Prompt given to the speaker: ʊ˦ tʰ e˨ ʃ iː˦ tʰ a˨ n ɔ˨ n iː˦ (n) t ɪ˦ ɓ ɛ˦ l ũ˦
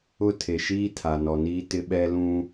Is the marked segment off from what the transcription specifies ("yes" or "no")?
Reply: yes